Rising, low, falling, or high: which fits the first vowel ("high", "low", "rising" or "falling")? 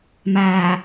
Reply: low